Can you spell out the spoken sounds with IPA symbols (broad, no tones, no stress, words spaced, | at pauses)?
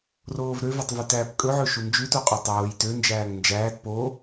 roːvɾø vetˤvytæːpkʼɵ ʕɵʃund͡ʒʉ toqʼotˤoːj tø nd͡ʒæːŋnd͡ʒæːt po